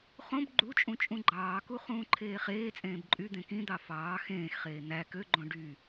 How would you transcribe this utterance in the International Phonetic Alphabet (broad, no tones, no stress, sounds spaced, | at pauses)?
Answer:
χ õ b ɡ͡ǃ u t͡ʃʼ ũ t͡ʃʼ ũ ɡ͡ǃ ɑː k u χ ũː ǃʰ eː χ eː t͡sʼ ẽː b ǃʼ y d̪ ẽ k ĩ d̪ ɑ f ɑː x ẽː x χ eː n̪ æ k ø ɡ͡ǃ õ ɖ y